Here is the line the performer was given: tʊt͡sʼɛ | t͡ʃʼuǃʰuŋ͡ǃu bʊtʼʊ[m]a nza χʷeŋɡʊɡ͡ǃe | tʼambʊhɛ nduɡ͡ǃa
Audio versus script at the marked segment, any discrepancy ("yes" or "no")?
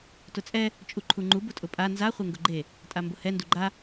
yes